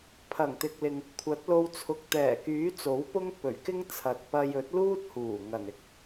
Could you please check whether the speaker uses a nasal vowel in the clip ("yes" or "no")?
no